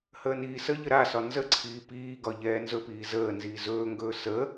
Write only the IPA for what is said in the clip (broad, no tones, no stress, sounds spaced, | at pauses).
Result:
h əː n iː s ə ʎ ə ɾ a s ɒ n z ə ǀʰ iː p iː ɡ ɒ ʎ ɛː n z ɵ p iː z əː n z iː z ɵː ŋ ɡ ɵː s ə